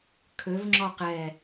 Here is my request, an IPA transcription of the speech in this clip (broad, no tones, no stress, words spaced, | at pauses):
kʰøvŋ͡ǁɔ qɛ